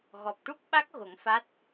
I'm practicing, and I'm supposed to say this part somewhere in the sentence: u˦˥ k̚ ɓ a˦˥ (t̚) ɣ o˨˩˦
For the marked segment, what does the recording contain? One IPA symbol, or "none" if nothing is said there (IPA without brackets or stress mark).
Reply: k̚